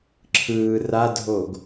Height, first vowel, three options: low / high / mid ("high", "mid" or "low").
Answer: high